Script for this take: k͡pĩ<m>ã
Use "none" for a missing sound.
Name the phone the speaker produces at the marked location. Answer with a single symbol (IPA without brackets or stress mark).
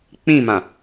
m